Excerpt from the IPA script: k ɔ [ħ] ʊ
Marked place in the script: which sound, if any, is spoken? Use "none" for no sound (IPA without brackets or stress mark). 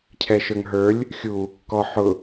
ħ